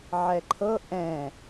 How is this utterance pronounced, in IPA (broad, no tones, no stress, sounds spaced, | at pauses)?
ʕ ɛ ǃʰ ɤ ʔ ɛ̃